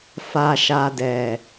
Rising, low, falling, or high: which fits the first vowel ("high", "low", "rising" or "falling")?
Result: low